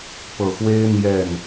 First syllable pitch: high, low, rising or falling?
low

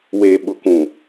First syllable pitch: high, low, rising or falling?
low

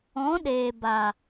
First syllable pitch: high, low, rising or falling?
rising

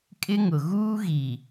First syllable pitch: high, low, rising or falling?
high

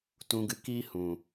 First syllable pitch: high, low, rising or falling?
low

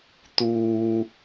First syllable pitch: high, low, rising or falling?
low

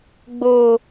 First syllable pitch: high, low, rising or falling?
low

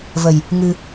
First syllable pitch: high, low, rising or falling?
low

